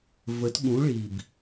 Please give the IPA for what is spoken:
v ə˨˥ t ɠ ũ˨˥ ɭ i˨˩ b

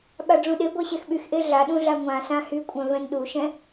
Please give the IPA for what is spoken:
ɓ a ɖ͡ʐ ũ ɗ e ɡʷ ɛ ɕ ɛ x ɓ y x ʔ e ɮ a ɗ ũ ɮ a ŋʷ ã s ã h y kʷʼ œ̃ v ɛ̃ n ɗ u ʃ ɛ̃

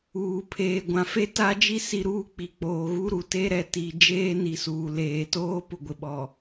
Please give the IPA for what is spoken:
uː˨ pʰ eː˨ ɡʷ ã˨ f e˦ t a˦ d͡ʒ i˦ s i˦ ɾ uː˦ k͡p i˨ k͡p oː˨ ɣ u˦ ɾ u˨ t e˦ ɾ ɛ˨ t i˨ d͡ʒ eː˦ n i˨ s uː˨ l eː˨ t oː˦ p ʊ˨ ɡʷ ɪ˨ ɓ ɔ˨

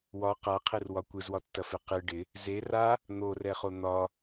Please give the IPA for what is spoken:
w ɒ q a qʰ e r w ɒ kʷ ɨ z w ɒ tː ɐ f e q ɨ ɖ ɪ | z e r a | n̪ o r ɛ χ o n̪ ɒ

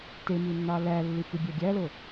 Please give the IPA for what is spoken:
t e m i nː ɑ l æ lː i p i bʲ ɑ ɡʲ æ l o

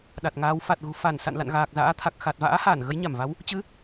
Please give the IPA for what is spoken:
ɗ a˨˩ t̚ ŋ aː˨˦ w f a˨˩ t̚ ɣ ṳ˨˩ f a˧˩ n s a̰˧˨ n l a̰˧˨ n ɣ aː˨˩ k̚ z a̰ː˧˥ t̪ʰ a˨˩ k̚ x a˨˩ t̚ v a̰ː˧˥ h aː˧˩ n ɣ ə˨˦ j ɲ a˧˩ m v a˨˦ w | t͡ɕ ɨ˨˦

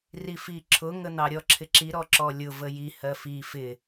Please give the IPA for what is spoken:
r i f i ǁʰ ʊ ŋ ə n̪ ɑ ɾʲ ɔ ǁʰ ɪ ǁ i ɾ ɔ ǁ ɔ lʲ ʊ v ə j i h ɜ f i f ɪ

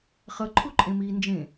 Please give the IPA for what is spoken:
χ ʌ ǃʰ u ǃʼ ẽ m iː n d͡ʒ ẽ

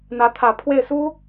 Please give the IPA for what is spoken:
n̪ ä˧˥ t̪ʰ ä˨˩ pʰ w e˥˩ ɪ̯ s u˥

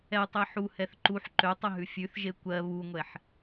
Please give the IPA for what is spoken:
ɛ tˤ e ħ u h ɛ θ ǃ u ħ ǃ ø tˤ ə ɦ ʉ fʲ ʉ θ ʒ e kʷ ɜ β u ŋʷ ɛ ħ

